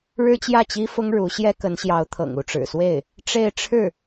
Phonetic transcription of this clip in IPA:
ɻ ɻ̩˥ t͡ɕ j ä˥˩ t͡ɕ i˥ f ʊ˥ ŋ ɻ u˧˥ ɕ j ɛ˥ k ə˧˥ n ɕ j ɑ˧˥ ʊ̯ t̪ʰ ɤ̰˨˩ ŋ u˥˩ ʈ͡ʂ ɻ̩˨˩ s w e˥˩ ɪ̯ | ʈ͡ʂ e˥˧ ɪ̯ ʈ͡ʂʰ ɻ̩˥˩

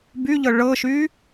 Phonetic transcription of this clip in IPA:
b y ʎ ɤ ɭ ɤ ʃ y

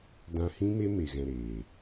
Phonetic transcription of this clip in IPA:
d ã˧ h ĩ˦ m e˦ m e˨ ɣ ɛ̃˨ ɾ eː˨

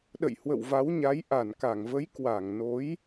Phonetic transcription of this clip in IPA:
ɗ ə̰˧˨ j h w ə̰˧˨ w v a˨˦ w ɲ a˨˦ j ʔ a˧˩ n k a˧˩ ŋ v ə˨˦ j k w a˧˩ ŋ n o˨˦ j

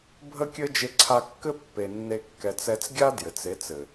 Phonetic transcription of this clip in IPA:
bʱ ə˦ kʲ ɘ˦ d͡ʒ e˧ ǀʰ a˧ kː ɘ˦ pː e˧ nː e˦ kː ɛ˧ t͡s ɛ˦ t͡s ɡʲ a˦ d j ɘ˨ t͡s e˨˦ t͡s ɘ˨

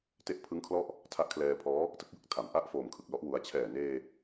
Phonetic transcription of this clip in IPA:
t e˦˥ ʔ pʰ ɯ˦˥ ŋ kʰ l ɔ˦˥ ʔ | tʰ a˦˥ ʔ kʰ l ɛː˧ pʰ ɔː˦˥ | t ɯ˥˩ k̚ j ɯ˥˩ k̚ tʰ a˩˦ m ʔ a˥˩ ʔ f oː˨˩ m kʰ ɯ˨˩ k̚ l ɔ˥˩ ʔ w u˧ a̯ t͡ɕʰ ɛː˨˩ n eː˧

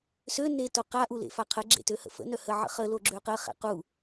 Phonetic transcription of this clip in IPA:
s ø n e t o q a ʔ u l ḛ f a qʰ ə ɡ͡ǁ ḛ t ø h ə̰ f ə̰ n œ h ə ʕ ə̰ χ ə l o ɡ͡ǁ ø q ə χ ḛ q u

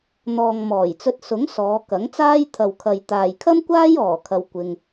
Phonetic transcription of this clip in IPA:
n̪ ɔː˨ ŋ m ɔː˨˩ j t͡s ɵ˧ t̚ s ʊ˨˥ ŋ s ɔː˨˧ k ɐ˨˥ ŋ t͡s aː˥ j t̪ʰ ɐ˨ w kʰ ɐ˨ j t̪ aː˨ j kʰ ɐ˥ m kʷ aː˥ j ɔː˨˩ kʰ ɐ˨ w kʷ ɪ˧ ŋ

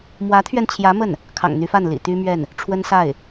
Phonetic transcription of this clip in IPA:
m w ä˧˥ t̪ʰ ɥ ɛ˧ n t͡ɕʰ j ä˧˥ m ə˥˩ n | kʰ ɑ̰˨˩ ŋ n̪ y˧˥ f a˥˩ n l ḭ˨˩ t̪ y˥ m ɥ ɛ˥˩ n | ʈ͡ʂʰ w ə˥ n s a˥˩ ɪ̯

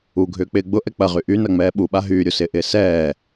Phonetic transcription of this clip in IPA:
u ɡʱ ʏː k͡p ɪː ɡ͡b ʊ ʔ ɛ k͡p ɐ ʁ y ʔ y n ɐ ŋ͡m ɛː ɓ u ɓ a ɦ yː ɾʲ u s ɪː ʔ ɪː s ɛː

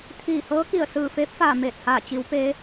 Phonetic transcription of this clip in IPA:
t̪ʰ iː˧˩ h ɤː˧˥ k i˧˩ ə̯ s ɯː˧˩ f eː˧˥ p̚ f aː˧˩ m eː˧˩ t̚ h aː˧˩ t͡ɕ i˩˧ w p eː˩˧

